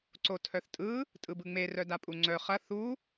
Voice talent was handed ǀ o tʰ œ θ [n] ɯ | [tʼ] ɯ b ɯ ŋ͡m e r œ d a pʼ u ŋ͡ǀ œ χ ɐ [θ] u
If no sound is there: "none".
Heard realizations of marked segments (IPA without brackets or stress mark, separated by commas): tʼ, tʼ, θ